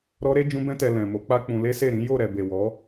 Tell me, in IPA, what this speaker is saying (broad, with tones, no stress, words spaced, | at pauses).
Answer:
ɾɔ˦ɾe˦ d͡ʒũ˦bɛ̃˦tɛ˧ lɛ̃˨mo˨˦k͡pa˦k͡pũ˧ le˦se˦˨ɾĩ˨˦ jo˦˨ ɾɛ˨ be˨wɔ˨˦